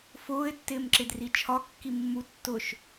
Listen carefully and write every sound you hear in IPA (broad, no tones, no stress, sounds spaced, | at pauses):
f ʊː ɪ̯ tː ɪː m ǁ ɪ d r i t͡ʃʰ ɒ kː i mː u tː ʊ ʃ